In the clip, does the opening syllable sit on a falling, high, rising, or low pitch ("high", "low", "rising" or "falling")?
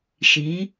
rising